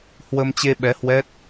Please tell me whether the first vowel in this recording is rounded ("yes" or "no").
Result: no